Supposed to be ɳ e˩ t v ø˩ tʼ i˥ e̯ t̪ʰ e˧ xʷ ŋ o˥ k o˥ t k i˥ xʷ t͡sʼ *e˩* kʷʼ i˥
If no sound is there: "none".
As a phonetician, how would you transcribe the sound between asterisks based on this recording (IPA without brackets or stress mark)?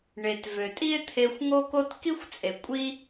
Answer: e˩